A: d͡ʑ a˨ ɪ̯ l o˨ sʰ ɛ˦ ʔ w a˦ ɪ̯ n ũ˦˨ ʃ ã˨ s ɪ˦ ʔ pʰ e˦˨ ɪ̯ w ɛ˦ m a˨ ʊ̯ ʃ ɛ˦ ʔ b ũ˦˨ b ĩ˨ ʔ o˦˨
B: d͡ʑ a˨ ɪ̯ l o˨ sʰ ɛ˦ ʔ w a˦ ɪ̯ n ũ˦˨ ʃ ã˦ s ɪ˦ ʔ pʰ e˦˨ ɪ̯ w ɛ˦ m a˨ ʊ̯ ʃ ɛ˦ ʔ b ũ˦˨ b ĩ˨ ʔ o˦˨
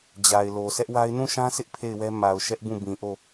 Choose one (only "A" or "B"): B